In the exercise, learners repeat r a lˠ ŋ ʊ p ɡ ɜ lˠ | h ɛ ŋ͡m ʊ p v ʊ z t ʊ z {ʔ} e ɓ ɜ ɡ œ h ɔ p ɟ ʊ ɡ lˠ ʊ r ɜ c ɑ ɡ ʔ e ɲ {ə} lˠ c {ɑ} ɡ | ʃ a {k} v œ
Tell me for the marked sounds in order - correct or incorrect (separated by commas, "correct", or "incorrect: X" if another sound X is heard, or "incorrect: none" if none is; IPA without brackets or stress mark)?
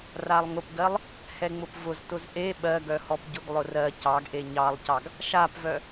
correct, incorrect: ɑ, correct, incorrect: p